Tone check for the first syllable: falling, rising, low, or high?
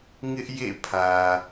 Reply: high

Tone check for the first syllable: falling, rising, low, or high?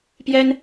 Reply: high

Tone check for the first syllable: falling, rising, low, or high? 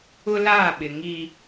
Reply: high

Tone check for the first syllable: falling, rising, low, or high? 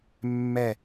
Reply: falling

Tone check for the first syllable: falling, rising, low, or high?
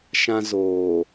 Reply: high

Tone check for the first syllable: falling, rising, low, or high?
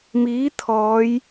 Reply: rising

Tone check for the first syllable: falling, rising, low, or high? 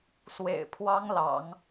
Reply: low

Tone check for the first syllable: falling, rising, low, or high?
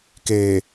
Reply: low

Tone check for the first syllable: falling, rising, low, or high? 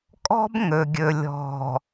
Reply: high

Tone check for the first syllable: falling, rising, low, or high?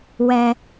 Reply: low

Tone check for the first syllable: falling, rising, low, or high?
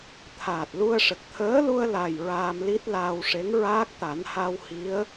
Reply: low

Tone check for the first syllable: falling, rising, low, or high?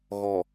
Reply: low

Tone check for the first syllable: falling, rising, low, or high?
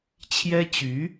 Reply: high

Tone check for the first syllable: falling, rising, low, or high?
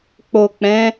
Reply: low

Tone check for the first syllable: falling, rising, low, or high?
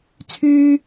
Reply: high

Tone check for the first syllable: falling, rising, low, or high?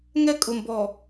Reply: high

